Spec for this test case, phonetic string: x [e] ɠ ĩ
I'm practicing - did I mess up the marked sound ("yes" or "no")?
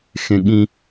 yes